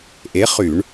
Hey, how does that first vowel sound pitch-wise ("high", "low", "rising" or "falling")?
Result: rising